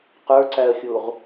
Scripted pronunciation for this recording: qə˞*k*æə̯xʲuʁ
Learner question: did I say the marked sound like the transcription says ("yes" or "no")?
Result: no